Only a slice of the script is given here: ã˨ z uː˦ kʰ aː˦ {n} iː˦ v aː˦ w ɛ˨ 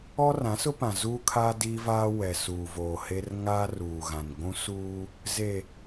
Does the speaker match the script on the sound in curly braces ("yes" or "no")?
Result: no